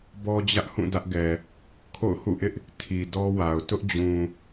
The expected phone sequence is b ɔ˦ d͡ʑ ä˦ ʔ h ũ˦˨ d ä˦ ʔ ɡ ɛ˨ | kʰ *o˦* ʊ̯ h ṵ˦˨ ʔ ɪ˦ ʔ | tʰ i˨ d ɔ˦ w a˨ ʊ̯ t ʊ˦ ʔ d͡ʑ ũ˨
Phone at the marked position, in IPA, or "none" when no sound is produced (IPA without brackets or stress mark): o̰˦˨